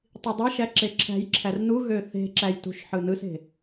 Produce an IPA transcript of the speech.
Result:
tˤ i dˤ e ʃ æ ǁ e ǁʰ æ̤ j ǁʰ æ r n u ɣ ø θ e̤ ǁ æ j t ṳ ʃ ħ ɯ n ɯ s e̤

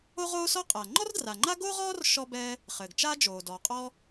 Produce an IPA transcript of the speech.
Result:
o˥ ʁ oː˥ s ɔ˥ qʼ a˩ ŋ͡ǃ ɔ˥ r d r a˩ ŋ͡ǃ a˥ ɡ o˥ ʁ ɔː˥ r ʃ ɔ˥ b ɛː˥ | χ ɘː˩ ɡ t͡ʃ aː˥ d͡ʒ oː˩ d ɔ˩ qʼ ɔ˥

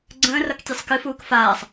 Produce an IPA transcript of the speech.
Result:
ɡ͡ǀ ə̃ː r ʌ k tʲ e sˤ k ɨ f uː k f aː sˤ

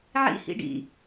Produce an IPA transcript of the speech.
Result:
ʕ ḭ h ḭ ɖ ḭ

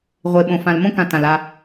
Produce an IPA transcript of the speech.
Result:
ʁʷ e˨ ɓ õ˨ f ã˨ l m õ˦ k ã˨ t ã˨ l a˦

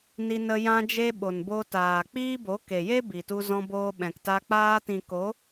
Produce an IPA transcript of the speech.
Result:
n i˧ n ə˧ j ã˧ d͡ʒ e˧ ɓ o˨ n b o˧ t aː˨ k͡p iː˦ b o˨˦ k e˨ j e˦ b i˨ t u˧ z ɔ̃˧ b oː˧ ɓ ɛ̃˨ k t a˧ k͡p aː˧ t ĩ˨ k o˨˦

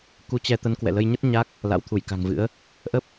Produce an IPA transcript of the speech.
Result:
k u˨˦ t͡ɕ ɛ˧ t̪ ə˨˦ n k w ɛ̰˧˨ l ə˧ j ɲ ə˦˥ t̚ ɲ a˦˥ k̚ | l a̰˧˥ w t̪ʰ u˧˩ j k a̤˨˩ ŋ v ɨ̰˧˥ ə̯ | ʔ ə˦˥ p̚

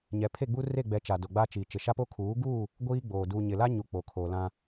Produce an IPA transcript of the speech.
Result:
ɲ ɛ˨ pʰ e˦˨ ɡ͡b u˦ r e˦˨ ɡ͡b ɛ˨ t͡ʃ a˨ d o˨ ɡ͡b a˦ t͡ʃ iː˨ t͡ʃ ɪ˨ ʃ a˦ p o˦ kʰ uː˨˦ ɡ uː˦˨ | ɡʷ iː˦ ɡ͡b oː˨ d u˨ ɲ ɪ˨ l a˦ ɲ u˨ k͡p o˨ kʰ o˨ l ã˦

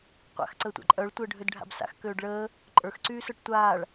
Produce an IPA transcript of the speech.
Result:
qʷ a̰ x ǀ əː tʷ a̰ ǃʼ œ ɭ tʷ əː ɖʱ ø d ɖʱ a̰ b s a̰ x k øː ɖ ɭ əː | ǃʼ ə˞ x ǀ yː s ə˞ ʈ tʷ aː ɭ

